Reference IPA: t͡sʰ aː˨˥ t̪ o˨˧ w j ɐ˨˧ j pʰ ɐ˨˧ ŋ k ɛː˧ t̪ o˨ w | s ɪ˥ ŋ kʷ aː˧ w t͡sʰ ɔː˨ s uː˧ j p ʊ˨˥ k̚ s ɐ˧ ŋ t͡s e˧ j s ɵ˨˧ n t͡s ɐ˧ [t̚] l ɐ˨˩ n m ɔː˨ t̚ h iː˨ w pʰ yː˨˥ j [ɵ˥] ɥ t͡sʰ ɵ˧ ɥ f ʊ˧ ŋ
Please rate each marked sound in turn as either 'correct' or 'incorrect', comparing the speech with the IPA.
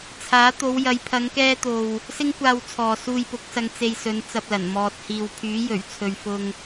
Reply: incorrect, incorrect

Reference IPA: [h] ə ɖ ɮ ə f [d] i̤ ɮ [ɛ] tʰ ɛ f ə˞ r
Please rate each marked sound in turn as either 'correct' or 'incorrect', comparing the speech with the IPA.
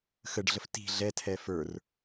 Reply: incorrect, incorrect, correct

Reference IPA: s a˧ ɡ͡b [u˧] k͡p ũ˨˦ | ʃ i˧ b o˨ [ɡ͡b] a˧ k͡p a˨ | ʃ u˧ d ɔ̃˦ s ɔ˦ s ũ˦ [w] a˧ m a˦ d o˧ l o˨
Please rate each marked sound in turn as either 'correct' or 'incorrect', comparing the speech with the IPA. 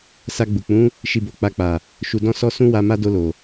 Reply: incorrect, incorrect, correct

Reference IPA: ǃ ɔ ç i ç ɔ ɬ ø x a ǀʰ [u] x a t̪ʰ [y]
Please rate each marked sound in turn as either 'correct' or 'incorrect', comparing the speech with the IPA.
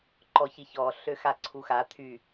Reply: correct, correct

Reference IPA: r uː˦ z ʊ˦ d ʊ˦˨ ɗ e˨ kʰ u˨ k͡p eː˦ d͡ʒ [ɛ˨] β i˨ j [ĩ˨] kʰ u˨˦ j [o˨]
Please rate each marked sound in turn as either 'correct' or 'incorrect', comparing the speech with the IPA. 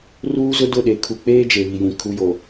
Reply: incorrect, correct, correct

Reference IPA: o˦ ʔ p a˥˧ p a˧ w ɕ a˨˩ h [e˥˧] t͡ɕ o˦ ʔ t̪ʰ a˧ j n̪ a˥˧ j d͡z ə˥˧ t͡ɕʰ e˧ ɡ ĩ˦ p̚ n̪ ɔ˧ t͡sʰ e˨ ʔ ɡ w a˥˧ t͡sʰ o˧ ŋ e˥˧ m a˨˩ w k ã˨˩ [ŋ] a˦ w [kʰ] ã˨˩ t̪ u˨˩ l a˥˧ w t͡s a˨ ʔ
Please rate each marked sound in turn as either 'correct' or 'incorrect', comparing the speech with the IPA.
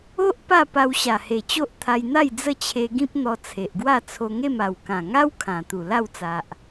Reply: incorrect, correct, correct

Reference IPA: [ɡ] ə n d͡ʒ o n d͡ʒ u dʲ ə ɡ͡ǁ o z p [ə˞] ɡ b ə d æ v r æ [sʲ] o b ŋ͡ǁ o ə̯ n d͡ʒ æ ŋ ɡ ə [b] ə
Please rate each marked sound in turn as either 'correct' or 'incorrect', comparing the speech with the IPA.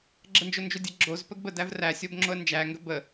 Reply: incorrect, incorrect, correct, correct

